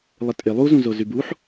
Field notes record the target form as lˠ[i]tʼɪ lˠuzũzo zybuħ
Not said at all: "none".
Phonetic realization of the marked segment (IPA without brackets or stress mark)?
ɪ